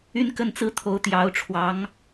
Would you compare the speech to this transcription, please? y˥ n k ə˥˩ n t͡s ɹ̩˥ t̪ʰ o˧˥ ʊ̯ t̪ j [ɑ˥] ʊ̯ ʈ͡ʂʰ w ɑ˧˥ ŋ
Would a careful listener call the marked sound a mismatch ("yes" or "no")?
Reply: yes